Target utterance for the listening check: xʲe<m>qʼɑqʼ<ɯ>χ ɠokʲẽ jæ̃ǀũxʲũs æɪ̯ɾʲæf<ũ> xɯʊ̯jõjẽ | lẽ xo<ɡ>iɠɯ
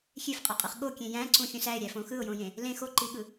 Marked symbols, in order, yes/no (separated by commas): no, yes, no, no